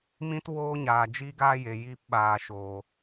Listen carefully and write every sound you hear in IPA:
m ĩ˦ t w oː˦ ɲ aː˨ d͡ʒ iː˦ ɡ aː˦ j e˨ j iː˧ p ɓ aː˨ ʃ oː˨

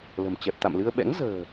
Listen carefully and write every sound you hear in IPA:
l ə̤˨˩ m t͡ɕ ɛ˨˩ p̚ t̪ a̰˧˨ m l ɨ˧ ə̯ ɓ ɛ̰˧˥ ŋ z ə̤ː˨˩

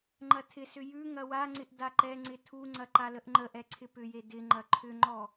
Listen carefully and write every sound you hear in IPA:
ŋ͡ǃ ɐ tʰ ɪ s ʏ j ʉ ŋ ɐ w a ŋ͡ǀ ɪ ʔ d a ǃ ɛ ŋ͡ǀ ɪ tʰ u ŋ͡ǀ ɐ ǃ a l ə ʔ ŋ͡ǃ ə ʔ ɛ ǀʰ ɪ p ʏ j e d ɪ ŋ͡ǃ ɐ ǃʰ ʏ ŋ͡ǃ ɔ

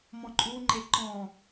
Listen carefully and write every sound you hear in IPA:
m ɔ̃ ǃʼ u ŋ͡ǃ e ǃ ɔ̃

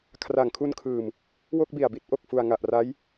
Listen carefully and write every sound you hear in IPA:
kʰ r a˨˩ ŋ kʰ u˧ n kʰ ɯː˨˩ m | w o˥˩ k̚ b i˨˩ a̯ b i˥˩ t̚ ʔ o˨˩ k̚ f u˨˩ a̯ ŋ a˨˩ ʔ r a˦˥ j

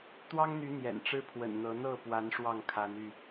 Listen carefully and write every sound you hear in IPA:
t̪ w ɑ˦ ŋ n̪ y˨˦ n̪ j ɛ̰˨˩ n ʈ͡ʂ ɻ̩˦ pʰ w ə̰˨˩ n n̪ ɤ˨˦ n̪ ɤ˥˨ p w a˨˦ n ʂ w ɑ˥˨ ŋ kʰ a˨˦ n y˥˨

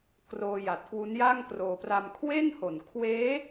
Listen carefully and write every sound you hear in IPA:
k r oː˧ j a˨˩ t̚ k w u˦˥ n j a˥˩ ŋ k r oː˧ p r a˧ m kʰ w e˥˩ n h o˨˩ n kʰ w eː˦˥

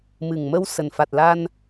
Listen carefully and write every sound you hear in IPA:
m ɨ˨˩ ŋ m ə˧ w s ə˨˩ n f a˨˩ t̚ l a˧ n

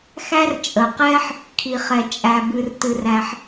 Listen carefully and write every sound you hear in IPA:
x æ˥ r t͡ʃʼ ə˩ q ɛ˥ ħ | kʰ i˩ χ ɛ˩ t͡ʃʼ æ˩ b ɨ˩ r t ɨ˩ r æ˩ ħ

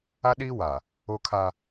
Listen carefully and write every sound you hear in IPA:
a˦ ɗ iː˦ w a˨ | o˦ kʰ a˦

